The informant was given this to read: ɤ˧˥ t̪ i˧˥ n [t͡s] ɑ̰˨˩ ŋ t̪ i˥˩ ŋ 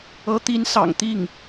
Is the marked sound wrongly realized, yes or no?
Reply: yes